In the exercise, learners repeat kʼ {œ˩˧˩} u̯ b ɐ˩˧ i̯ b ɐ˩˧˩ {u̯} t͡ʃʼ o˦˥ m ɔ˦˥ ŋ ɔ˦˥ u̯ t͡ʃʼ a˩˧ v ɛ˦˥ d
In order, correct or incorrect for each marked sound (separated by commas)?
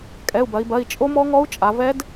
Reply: incorrect, incorrect